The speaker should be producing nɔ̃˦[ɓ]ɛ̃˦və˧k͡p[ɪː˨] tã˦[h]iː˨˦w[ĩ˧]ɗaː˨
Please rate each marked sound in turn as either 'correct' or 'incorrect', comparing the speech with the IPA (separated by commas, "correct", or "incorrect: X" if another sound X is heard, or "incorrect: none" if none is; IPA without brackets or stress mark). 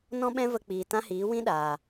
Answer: correct, incorrect: iː˨, correct, incorrect: ĩ˦